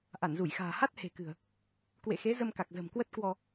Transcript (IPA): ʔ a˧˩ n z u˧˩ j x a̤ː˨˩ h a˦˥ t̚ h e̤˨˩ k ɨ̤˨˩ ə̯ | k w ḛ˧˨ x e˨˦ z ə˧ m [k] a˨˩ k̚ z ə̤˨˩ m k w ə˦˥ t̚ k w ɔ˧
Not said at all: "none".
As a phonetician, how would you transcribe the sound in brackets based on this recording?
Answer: k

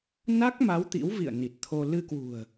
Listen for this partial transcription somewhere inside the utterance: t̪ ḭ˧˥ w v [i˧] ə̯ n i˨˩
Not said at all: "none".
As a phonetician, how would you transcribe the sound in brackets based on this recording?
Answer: ḭ˧˨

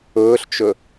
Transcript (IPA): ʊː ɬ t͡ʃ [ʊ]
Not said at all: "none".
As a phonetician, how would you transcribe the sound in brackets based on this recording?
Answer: ʊ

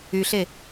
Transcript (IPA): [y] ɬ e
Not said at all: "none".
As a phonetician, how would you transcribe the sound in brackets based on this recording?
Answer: y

